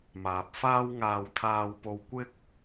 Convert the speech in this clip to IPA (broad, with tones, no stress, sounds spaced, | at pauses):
m aː˨ p̚ f aː˥ w ŋ aː˧ w t̪ʰ aː˧ w p o˧ w kʷ ɪ˥ k̚